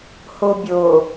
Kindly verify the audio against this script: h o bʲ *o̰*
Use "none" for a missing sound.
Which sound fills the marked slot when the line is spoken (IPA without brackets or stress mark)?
o